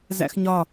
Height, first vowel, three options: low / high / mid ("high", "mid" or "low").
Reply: low